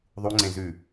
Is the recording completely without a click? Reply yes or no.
no